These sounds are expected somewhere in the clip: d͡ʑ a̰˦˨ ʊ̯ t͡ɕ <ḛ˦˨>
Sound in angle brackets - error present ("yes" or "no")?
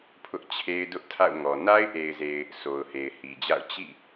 yes